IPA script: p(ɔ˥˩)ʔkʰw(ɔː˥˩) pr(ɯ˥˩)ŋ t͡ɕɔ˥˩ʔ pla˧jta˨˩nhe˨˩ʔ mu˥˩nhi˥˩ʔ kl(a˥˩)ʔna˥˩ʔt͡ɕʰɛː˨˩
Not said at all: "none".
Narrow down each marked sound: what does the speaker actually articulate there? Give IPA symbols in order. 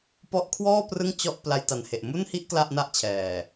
ɔ˦˥, ɔː˥˩, ɯ˥˩, a˥˩

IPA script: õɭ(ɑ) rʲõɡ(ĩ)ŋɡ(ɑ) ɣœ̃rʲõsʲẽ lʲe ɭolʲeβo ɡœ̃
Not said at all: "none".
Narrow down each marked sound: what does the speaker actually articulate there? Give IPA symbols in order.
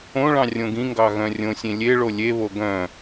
ɑ̃, ĩ, ɑ

